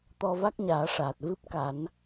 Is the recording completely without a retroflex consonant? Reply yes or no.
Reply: no